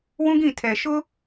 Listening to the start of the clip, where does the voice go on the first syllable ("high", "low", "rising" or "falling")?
high